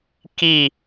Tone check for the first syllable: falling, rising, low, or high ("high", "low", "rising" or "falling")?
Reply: falling